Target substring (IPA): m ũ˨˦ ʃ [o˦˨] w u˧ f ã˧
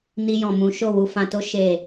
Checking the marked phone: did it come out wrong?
no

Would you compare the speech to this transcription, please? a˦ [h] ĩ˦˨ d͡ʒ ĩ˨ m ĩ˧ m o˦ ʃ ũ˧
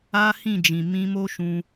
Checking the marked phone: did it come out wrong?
no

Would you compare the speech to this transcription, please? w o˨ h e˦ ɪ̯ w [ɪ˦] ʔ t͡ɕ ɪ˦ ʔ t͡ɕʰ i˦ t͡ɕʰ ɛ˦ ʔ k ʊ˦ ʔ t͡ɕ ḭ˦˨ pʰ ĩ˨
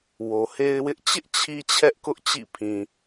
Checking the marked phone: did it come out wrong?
no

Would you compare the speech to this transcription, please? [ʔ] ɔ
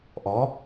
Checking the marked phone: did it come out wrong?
no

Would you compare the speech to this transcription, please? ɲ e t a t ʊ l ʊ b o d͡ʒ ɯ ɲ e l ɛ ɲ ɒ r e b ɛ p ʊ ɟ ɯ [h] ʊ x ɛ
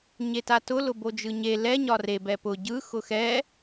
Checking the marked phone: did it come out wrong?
yes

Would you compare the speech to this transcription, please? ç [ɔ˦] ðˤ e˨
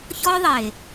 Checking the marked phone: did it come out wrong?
no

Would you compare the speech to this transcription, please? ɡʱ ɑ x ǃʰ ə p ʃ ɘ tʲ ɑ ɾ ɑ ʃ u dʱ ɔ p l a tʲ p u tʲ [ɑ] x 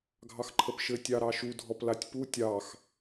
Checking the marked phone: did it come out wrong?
no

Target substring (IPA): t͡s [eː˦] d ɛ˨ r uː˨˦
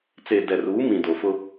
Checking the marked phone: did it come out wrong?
yes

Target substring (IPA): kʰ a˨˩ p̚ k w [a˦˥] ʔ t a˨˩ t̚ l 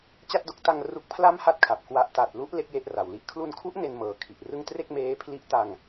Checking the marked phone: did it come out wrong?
no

